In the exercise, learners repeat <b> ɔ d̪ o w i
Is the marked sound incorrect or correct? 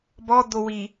correct